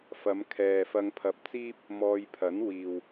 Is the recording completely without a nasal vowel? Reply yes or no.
yes